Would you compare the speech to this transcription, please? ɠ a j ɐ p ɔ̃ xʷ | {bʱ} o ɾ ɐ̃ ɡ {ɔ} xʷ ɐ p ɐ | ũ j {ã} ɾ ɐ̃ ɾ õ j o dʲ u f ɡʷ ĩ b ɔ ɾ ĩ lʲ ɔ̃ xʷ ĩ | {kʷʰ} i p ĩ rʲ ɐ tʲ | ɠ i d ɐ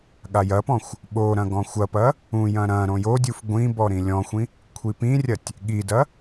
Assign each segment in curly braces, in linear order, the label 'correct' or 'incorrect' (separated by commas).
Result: incorrect, incorrect, incorrect, correct